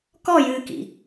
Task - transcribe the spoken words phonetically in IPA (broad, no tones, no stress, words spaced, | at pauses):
kɔjɨːkḭ